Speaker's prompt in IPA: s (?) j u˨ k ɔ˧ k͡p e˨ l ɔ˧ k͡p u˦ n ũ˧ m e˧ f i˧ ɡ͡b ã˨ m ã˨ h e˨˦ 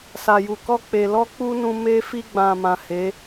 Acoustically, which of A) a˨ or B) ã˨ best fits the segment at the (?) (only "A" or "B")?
A